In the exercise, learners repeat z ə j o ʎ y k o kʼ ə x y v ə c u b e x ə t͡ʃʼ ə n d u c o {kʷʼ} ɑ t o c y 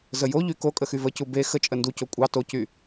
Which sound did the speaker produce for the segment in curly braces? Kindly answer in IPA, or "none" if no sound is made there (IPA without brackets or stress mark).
kʷʼ